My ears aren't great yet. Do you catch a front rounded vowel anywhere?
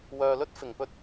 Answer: yes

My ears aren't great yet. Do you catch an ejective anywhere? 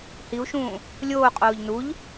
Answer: yes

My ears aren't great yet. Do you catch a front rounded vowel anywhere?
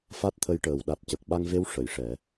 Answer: no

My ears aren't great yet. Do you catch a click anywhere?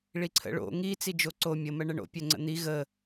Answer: yes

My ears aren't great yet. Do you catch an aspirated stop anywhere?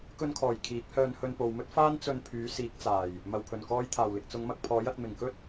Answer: yes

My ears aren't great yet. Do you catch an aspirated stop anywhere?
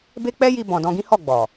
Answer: no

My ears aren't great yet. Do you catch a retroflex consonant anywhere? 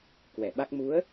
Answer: no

